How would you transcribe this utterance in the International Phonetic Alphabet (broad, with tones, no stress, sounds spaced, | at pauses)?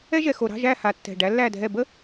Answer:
ɛ˥ ʒ ɛ˨˩ x o˨˩ ɾ ɑ̤˧˥˧ ʒ æ˦˨ h a˨˩ tː ɛ̤˨˩ ɖ æ˨˦ lː æ˦˨ dʱ ɛ˦˨ b ə˥